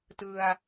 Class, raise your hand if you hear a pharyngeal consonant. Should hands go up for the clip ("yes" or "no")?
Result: no